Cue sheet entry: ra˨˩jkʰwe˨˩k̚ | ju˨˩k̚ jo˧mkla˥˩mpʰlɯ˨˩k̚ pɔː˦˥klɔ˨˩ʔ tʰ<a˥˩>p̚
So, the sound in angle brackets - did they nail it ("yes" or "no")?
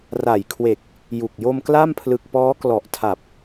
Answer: no